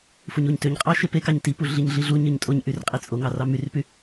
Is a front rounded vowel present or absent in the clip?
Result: present